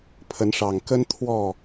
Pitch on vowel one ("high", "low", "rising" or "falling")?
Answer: rising